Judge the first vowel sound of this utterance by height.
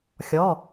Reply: mid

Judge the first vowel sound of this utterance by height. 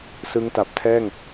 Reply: high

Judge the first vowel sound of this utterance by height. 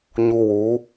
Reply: high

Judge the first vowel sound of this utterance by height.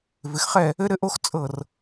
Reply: high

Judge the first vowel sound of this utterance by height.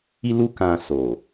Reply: high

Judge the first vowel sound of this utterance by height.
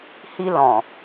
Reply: high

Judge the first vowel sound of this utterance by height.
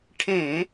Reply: mid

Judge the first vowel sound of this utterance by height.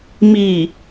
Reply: high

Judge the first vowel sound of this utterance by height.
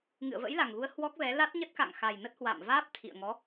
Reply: high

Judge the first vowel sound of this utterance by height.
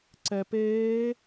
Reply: mid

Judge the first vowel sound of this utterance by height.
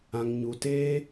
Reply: low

